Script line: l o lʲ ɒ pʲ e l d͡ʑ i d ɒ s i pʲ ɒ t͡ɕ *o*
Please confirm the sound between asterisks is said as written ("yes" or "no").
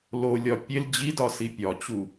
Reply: no